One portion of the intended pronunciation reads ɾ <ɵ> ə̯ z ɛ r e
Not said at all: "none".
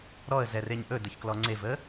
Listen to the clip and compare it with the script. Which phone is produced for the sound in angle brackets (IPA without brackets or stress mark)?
ɔ